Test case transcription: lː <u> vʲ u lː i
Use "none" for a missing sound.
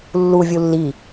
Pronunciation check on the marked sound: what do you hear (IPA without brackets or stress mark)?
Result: u